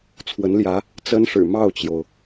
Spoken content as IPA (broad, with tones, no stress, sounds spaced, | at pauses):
t͡sʰ w ə˧˥ n l j ä˧˥ | t͡s ə˥ n ʂ ɻ̩˨˩ m ɑ˥˩ ʊ̯ t͡ɕ j o˩ ʊ̯